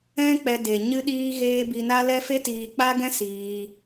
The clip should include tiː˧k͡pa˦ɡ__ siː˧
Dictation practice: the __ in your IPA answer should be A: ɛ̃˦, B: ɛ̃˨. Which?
A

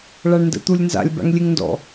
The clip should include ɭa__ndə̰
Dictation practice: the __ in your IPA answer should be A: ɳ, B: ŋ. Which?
A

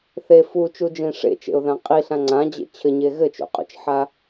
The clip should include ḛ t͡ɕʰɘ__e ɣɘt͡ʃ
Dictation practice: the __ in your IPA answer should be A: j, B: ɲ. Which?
B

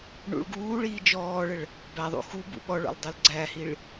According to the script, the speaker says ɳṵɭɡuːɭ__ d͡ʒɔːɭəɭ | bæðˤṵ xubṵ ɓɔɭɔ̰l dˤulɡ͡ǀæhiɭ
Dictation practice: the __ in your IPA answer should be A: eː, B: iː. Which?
B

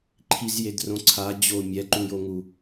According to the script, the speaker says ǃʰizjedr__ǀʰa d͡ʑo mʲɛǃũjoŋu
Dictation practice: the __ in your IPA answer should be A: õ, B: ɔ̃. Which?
A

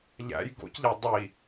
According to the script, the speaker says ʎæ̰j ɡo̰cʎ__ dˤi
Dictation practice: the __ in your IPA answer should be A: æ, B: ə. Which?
A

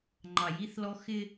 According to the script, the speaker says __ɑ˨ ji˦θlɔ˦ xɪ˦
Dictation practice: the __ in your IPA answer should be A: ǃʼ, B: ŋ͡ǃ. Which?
B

